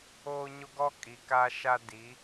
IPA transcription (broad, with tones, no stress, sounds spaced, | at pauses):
oː˦ ɲ o˦ ɡ ɔ˦ kʼ i˨ k aː˦ ʃ a˦ d i˨˦